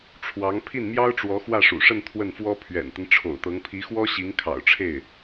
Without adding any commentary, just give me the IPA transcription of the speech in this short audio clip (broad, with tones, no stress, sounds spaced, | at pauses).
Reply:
ʈ͡ʂʰ w ɑ˧˥ ŋ pʰ i˥˩ n m j ɑ˥ ʊ̯ ʈ͡ʂ w ɔ˧˥ x w ä˥˩ ʂ ṵ˨˩ ʂ ə˥˧ n t̪ʰ w ə˥˩ n f w ɔ˥ pʰ ɥ ɛ̰˨˩ n t̪ ə˦ n ʈ͡ʂʰ o̰˨˩ ʊ̯ t̪ ɤ˧˥ ŋ pʰ i˧˥ x w ɔ˥ ɕ i˧˥ ŋ kʰ ɑ̰˨˩ ʊ̯ ʈ͡ʂʰ e˥˩ ɪ̯